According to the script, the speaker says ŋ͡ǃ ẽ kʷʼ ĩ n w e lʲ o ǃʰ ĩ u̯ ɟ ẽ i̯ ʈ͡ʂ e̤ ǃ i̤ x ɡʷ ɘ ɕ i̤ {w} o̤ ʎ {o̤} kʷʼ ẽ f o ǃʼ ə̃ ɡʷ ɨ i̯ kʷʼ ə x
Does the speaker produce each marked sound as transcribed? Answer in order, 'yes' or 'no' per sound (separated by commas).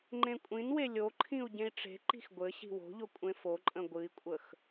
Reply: yes, no